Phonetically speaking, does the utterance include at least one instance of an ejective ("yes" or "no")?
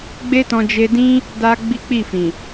no